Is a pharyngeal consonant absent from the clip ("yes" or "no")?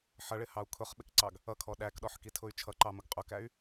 no